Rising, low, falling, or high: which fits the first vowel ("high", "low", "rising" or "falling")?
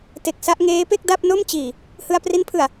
low